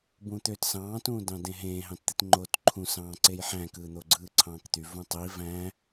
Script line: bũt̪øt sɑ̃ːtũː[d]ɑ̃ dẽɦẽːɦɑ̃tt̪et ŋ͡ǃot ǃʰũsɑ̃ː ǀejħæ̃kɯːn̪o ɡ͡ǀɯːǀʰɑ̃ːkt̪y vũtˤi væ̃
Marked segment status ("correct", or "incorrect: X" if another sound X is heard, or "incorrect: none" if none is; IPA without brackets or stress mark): correct